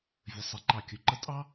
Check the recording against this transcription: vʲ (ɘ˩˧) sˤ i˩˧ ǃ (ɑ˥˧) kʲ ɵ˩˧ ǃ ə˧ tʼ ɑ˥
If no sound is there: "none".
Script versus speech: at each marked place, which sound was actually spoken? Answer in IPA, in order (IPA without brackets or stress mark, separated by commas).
ɘ˩˧, ɑ˧˩